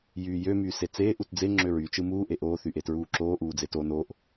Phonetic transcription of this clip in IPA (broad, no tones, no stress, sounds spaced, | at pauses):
j yː j ø m yː s e t͡s eː ʔ u t d͡z e ŋ͡ǁ ø ɹ y t͡ʃ ɯ m uː ʔ e ʔ oː θ y ʔ e t ɹ uː ǁ oː ʔ uː d͡z e t o n o ʔ